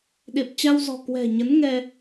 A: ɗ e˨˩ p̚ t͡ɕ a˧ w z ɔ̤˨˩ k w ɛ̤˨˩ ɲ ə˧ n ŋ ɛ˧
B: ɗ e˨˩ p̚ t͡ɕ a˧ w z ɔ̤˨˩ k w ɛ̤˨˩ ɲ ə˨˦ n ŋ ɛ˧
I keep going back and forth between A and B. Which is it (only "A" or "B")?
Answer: B